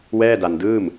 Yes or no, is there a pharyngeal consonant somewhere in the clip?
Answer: no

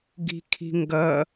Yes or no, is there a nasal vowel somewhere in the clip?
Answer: no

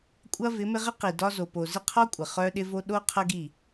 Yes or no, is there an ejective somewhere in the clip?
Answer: yes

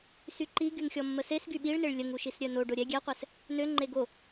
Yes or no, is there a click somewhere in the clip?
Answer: yes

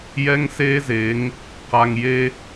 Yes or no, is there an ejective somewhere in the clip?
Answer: no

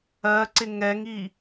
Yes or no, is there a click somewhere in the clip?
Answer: yes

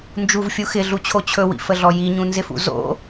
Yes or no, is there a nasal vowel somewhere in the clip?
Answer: yes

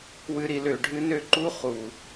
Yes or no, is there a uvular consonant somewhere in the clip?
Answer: yes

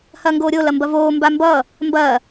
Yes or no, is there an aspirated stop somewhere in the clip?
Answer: no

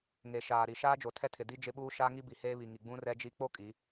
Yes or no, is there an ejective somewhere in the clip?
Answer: yes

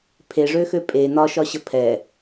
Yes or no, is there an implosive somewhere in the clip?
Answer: no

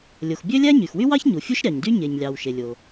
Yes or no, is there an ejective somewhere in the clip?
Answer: no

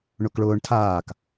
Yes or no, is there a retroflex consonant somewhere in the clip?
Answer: yes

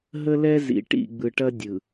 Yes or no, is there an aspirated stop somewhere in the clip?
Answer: no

